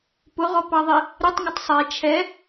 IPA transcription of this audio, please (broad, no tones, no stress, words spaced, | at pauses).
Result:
pʊʁɔpɑðˤi | ɾɪtˤŋʊtˤ sˤɛ t͡ʃʰɛ